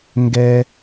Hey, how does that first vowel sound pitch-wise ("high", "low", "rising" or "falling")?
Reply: low